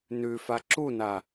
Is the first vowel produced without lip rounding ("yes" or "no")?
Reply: no